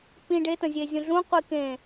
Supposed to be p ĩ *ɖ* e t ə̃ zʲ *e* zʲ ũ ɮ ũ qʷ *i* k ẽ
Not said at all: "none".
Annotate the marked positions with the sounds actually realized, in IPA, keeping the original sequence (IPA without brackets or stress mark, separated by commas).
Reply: ɖ, e, i